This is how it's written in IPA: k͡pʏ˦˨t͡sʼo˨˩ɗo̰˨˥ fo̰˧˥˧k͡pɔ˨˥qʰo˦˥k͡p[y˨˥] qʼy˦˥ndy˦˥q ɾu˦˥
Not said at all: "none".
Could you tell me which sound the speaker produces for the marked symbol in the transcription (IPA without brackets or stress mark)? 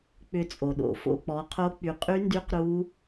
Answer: y˨˥